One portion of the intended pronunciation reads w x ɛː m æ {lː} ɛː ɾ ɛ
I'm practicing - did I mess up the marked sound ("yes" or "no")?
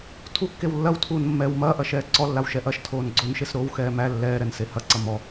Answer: no